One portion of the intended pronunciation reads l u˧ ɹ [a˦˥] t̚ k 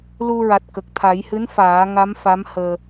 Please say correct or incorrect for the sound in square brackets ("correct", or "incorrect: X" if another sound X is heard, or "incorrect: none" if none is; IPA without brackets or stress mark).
incorrect: a˨˩